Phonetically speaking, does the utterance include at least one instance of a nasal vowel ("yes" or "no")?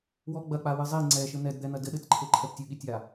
no